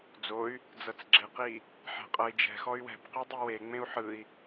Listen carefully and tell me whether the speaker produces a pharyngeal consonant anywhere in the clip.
yes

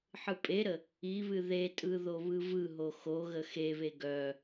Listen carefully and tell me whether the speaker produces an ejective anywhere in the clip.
yes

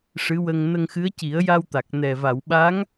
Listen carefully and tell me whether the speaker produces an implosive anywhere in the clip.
yes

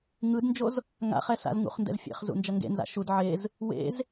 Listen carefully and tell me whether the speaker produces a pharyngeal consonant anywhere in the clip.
yes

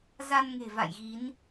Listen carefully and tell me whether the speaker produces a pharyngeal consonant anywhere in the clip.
no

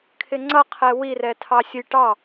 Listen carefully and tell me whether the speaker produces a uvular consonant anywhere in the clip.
yes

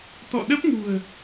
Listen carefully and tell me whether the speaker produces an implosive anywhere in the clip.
yes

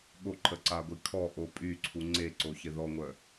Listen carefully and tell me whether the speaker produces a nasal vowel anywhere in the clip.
no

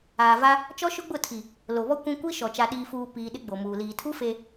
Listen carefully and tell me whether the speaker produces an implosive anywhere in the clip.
yes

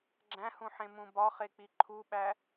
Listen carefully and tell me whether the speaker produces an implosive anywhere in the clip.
yes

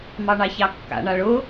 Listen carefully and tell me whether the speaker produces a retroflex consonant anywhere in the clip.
yes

